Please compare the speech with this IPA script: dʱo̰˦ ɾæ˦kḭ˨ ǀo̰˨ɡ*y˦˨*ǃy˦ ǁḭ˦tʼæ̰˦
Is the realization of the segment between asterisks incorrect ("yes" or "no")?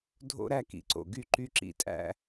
no